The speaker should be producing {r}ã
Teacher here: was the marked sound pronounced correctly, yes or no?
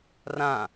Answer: yes